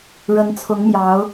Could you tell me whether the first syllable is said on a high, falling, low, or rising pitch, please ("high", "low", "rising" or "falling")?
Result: rising